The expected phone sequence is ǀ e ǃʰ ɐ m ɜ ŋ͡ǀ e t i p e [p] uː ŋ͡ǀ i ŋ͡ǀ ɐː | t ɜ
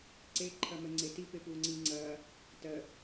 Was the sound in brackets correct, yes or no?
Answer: yes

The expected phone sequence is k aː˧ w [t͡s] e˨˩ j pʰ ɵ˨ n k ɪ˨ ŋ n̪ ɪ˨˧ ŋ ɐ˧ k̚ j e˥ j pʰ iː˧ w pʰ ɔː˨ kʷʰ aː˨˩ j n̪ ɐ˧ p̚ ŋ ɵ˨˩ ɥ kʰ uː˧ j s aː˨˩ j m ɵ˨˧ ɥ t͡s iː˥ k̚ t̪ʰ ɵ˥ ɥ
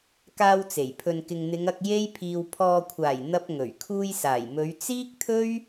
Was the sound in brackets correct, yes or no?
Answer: yes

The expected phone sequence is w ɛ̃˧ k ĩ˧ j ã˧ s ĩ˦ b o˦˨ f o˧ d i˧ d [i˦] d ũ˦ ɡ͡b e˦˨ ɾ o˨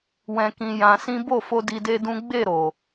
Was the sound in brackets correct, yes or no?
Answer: no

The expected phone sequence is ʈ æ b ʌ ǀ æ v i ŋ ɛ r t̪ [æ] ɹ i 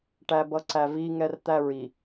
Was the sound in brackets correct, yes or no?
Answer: yes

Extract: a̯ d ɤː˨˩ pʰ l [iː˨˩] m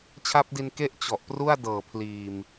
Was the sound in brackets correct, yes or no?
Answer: yes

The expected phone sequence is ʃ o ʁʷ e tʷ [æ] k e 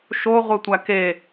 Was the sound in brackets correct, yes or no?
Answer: yes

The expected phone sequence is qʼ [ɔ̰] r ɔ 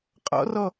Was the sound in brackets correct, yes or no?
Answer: yes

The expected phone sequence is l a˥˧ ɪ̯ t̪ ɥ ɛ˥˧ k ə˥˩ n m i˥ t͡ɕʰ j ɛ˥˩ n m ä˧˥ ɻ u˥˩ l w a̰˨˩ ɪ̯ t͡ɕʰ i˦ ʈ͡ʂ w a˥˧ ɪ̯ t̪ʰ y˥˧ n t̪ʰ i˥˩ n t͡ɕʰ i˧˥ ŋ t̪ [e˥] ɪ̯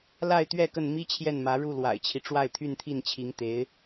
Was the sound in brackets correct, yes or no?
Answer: no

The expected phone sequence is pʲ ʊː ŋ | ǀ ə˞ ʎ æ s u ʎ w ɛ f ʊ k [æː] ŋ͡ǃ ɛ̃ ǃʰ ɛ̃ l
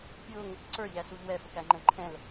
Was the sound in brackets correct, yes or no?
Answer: no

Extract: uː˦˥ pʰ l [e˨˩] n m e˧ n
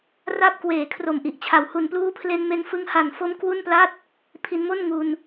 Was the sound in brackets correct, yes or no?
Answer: no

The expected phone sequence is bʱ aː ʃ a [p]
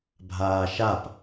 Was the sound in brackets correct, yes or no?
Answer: yes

